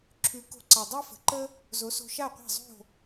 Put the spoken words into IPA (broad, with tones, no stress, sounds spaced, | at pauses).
ǁʰ ʉ˩˥ k o̤˧ ǀ a˩ dˤ æ˥ f ə̤˩ ǃ ə˥ | z o˩˥ s o̤˧ ʃ a˥˩ qʷ æ̤˥˩ zˤ o̤˥˩